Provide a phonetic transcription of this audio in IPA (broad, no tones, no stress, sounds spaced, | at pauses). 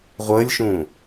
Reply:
ʁʷ əː lʲ ʃ ũː